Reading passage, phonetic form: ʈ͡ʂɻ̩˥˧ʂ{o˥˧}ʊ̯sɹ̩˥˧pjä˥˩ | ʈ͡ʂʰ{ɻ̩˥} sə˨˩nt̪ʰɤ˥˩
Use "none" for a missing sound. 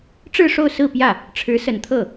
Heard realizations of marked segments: o˥˧, ɻ̩˧˥

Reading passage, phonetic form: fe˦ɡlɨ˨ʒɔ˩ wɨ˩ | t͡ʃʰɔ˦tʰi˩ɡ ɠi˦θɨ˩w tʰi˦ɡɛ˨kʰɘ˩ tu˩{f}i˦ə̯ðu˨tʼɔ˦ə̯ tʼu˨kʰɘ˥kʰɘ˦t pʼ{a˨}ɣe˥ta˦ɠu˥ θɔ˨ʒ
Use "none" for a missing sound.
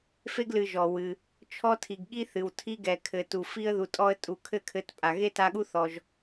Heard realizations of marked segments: f, a˨

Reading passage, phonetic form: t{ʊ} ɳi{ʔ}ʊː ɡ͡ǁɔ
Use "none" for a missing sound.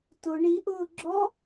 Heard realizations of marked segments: ʊ, ʔ

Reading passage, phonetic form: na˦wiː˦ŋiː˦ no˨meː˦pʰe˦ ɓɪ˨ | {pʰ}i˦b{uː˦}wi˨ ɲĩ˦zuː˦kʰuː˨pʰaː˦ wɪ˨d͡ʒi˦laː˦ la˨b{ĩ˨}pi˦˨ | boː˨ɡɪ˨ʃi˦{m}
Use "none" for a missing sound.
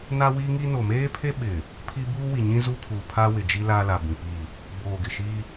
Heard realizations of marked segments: pʰ, uː˦, ĩ˨, none

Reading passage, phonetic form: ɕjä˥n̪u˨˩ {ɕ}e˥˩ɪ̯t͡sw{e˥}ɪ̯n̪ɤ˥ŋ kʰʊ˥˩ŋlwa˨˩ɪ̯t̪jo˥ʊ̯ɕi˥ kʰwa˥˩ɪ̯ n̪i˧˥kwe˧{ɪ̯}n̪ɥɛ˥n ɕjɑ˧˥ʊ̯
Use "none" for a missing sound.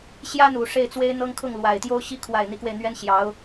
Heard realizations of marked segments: ʂ, e˥, ɪ̯

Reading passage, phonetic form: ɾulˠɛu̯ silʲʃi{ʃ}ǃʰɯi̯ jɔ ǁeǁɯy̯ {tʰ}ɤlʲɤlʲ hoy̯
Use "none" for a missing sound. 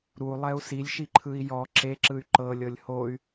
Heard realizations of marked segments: none, ǃ

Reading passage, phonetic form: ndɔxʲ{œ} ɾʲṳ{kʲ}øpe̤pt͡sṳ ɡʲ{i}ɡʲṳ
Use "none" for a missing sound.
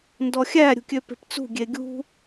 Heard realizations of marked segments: æ, kʲ, e

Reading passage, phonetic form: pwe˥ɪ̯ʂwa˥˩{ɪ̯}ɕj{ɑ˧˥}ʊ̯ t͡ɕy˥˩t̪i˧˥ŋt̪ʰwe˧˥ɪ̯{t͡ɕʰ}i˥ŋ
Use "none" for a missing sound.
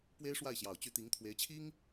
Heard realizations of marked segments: ɪ̯, ɑ˨˩, t͡ɕʰ

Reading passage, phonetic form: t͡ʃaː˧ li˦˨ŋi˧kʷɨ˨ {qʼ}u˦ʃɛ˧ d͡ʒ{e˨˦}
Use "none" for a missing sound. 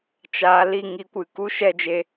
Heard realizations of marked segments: k, e˧

